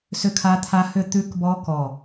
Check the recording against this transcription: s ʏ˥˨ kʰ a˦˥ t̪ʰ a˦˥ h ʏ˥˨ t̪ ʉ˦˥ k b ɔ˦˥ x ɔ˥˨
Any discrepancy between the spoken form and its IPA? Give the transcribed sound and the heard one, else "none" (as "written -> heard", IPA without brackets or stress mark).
x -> k